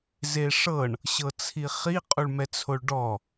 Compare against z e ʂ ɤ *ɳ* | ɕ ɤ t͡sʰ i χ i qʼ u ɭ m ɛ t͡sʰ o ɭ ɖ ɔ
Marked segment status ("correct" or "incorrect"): correct